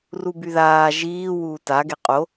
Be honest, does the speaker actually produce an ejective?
yes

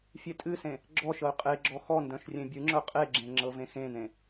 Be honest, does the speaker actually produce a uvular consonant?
yes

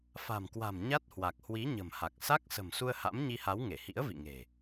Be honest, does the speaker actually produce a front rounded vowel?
no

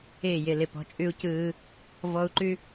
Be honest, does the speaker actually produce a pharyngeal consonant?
no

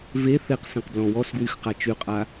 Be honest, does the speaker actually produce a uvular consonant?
yes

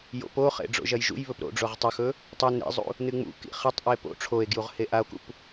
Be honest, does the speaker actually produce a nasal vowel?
no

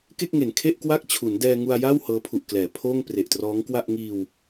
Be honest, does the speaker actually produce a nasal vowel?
no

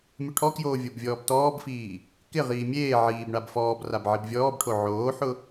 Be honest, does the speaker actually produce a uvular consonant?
yes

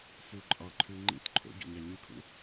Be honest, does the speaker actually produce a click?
yes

